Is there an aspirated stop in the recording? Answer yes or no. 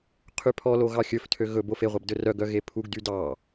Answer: yes